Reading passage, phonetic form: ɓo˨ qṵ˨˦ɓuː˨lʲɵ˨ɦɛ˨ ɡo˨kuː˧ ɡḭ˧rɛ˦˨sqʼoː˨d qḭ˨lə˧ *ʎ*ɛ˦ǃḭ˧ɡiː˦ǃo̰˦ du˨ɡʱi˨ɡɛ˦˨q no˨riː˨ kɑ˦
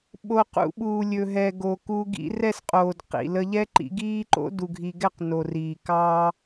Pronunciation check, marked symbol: correct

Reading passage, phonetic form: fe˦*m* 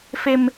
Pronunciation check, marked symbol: correct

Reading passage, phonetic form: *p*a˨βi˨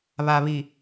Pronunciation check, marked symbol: incorrect: β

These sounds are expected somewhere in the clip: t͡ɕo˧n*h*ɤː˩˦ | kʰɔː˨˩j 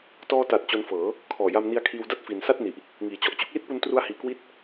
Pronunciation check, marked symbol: incorrect: f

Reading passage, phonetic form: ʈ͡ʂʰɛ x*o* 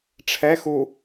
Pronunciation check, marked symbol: incorrect: u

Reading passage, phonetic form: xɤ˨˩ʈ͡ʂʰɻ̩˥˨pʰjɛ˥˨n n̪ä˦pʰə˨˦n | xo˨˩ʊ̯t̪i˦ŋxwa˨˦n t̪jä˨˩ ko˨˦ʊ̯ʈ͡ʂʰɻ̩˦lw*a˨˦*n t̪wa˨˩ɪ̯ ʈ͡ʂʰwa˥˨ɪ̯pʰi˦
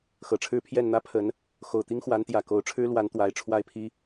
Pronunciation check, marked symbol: correct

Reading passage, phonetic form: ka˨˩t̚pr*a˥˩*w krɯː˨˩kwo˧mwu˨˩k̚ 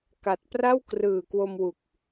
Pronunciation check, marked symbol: correct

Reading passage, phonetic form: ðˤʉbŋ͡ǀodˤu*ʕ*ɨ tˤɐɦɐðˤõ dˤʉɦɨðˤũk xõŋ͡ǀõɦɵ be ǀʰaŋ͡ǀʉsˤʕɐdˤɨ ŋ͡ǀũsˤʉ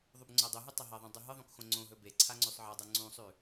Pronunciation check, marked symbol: incorrect: ɦ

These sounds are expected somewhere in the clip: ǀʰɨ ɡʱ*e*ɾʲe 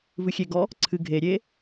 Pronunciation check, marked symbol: correct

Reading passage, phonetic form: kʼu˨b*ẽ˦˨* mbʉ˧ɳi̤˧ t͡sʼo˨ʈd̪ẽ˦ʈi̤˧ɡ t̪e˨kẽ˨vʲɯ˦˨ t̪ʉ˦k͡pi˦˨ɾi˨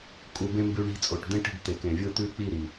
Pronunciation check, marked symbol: incorrect: ẽ˧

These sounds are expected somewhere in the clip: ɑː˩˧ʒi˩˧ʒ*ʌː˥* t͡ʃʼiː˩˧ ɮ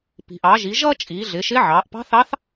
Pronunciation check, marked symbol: correct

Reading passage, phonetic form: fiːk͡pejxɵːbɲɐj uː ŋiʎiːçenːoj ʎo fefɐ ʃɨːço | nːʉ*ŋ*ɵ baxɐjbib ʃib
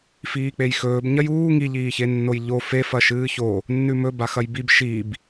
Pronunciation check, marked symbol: incorrect: m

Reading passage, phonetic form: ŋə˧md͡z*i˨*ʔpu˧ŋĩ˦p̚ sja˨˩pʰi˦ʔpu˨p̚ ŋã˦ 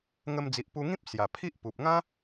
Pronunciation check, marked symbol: correct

